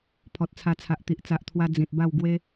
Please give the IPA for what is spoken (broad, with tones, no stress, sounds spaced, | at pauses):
pʰ ɔ˨ t̚ t͡sʰ a˧ t͡sʰ a˨ ʔ t̪ i˨ ʔ t͡s a˨ ʔ t̪ʰ w a˧ d͡z ĩ˨ t̚ b a˥˧ w ɡ w e˦